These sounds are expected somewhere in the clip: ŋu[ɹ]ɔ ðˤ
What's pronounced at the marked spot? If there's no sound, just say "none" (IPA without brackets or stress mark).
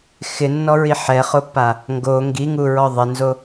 ɹ